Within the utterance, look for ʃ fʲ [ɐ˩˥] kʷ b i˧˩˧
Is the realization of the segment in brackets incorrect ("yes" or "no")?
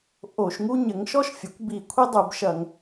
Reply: no